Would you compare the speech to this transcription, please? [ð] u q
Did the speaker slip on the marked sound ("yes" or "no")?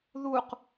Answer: no